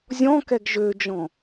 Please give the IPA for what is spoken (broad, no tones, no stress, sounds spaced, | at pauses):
zʲ ɔ̃ k ɛ ɡ ʒ ø d͡ʒ ɔ̃